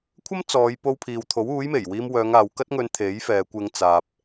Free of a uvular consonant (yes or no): yes